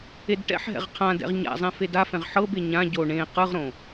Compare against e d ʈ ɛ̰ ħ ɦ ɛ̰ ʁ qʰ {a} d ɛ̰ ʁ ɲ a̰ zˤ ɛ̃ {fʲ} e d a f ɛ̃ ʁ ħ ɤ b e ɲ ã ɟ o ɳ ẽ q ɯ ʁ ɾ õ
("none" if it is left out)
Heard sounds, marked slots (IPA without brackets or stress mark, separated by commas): ã, f